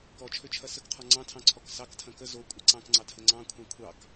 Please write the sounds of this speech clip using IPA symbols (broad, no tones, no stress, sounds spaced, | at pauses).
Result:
k ɔ t͡ʃʰ ø t͡ʃʰ ɐ s ə k qʰ ɔ ŋ͡ǀ ɑ̃ tʰ ɑ̃ ǀʰ ɔ k s ɑ k tʰ ɐ̃ k ə z o kʷʼ ɐ ǀ ɑ̃ k ŋ͡ǀ ɑ tʰ ə ŋ͡ǀ ɑ̃ kʷʰ ɑ̃ kʷʰ ɑ k